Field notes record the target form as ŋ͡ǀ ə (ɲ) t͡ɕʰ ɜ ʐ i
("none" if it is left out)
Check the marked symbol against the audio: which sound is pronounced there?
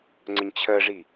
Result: ɲ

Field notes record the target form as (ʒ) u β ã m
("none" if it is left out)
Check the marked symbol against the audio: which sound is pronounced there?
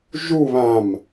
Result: ʒ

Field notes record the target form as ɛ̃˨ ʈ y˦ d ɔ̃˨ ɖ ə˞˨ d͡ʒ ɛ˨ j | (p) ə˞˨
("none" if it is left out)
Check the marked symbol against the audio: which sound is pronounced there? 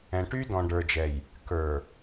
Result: k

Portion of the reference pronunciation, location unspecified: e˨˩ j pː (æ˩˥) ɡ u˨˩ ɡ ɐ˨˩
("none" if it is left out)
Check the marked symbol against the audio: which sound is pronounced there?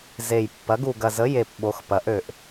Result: ɐ˩˥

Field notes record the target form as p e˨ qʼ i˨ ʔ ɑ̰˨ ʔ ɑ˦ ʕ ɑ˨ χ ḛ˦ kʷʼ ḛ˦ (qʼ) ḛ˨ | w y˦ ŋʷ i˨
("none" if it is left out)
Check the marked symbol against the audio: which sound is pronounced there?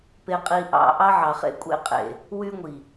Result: qʼ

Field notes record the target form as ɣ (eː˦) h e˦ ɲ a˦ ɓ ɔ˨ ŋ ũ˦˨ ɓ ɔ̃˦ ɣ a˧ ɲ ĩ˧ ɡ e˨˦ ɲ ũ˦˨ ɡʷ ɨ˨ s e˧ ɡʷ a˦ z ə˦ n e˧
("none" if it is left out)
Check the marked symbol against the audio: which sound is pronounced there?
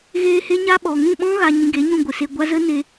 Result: eː˧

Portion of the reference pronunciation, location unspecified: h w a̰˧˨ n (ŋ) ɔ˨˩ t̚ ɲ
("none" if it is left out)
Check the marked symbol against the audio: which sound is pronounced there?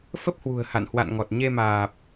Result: ŋ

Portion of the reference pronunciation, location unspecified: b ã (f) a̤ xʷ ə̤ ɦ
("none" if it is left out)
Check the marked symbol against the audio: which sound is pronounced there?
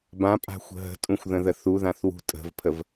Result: pʼ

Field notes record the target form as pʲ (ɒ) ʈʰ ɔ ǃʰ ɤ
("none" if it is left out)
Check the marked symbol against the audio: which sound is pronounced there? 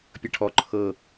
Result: ʌ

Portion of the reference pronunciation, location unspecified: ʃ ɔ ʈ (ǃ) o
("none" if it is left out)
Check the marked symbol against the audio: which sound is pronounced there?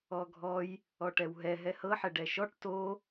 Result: t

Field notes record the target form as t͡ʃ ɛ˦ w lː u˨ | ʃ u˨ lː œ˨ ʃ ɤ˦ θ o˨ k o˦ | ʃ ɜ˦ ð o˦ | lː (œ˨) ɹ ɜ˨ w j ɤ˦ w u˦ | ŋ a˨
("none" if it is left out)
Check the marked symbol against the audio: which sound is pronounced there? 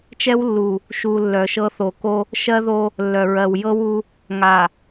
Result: œ˨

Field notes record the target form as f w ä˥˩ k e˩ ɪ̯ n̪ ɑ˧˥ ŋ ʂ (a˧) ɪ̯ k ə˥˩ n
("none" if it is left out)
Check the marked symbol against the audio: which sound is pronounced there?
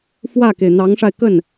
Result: a˧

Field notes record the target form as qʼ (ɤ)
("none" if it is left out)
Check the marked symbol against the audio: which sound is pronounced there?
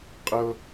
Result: ɤ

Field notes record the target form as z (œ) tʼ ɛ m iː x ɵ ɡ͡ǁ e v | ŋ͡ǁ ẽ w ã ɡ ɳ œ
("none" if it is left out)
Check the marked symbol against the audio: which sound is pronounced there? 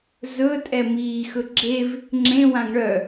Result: ɵ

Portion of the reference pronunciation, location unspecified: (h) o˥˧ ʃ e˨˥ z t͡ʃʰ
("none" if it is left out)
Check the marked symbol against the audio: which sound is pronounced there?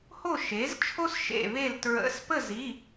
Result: h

